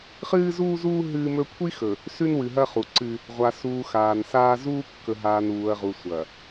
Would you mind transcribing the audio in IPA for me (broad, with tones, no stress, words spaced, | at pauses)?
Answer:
χɨː˦zuː˦zuː˦ ɦɨː˦mɵ˦ kʷʰi˦xɵ˨ | sʉ˦nwɨ˨ɦɐ˦χu˨ ǀɨ˦ | ʁʷa˨suː˨ xaː˨nsaː˦ zuː˦kːɵ˨ɦaː˨n uː˨ɐ̯ʁu˨ sʷɐ˨